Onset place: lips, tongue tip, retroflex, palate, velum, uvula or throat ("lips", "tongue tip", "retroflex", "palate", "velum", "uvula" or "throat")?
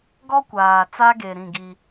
velum